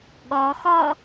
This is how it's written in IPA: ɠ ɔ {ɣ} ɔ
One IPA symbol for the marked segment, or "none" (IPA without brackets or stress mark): x